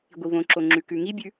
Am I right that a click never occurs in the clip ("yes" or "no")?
no